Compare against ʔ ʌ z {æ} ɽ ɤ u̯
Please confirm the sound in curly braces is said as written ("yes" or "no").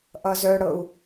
no